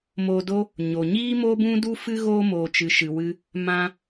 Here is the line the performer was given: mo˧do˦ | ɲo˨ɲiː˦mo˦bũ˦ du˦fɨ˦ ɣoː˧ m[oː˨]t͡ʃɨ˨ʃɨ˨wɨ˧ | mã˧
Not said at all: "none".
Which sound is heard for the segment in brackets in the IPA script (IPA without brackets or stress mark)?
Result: oː˨